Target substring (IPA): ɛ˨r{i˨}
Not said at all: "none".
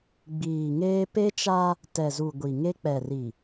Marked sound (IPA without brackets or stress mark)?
i˨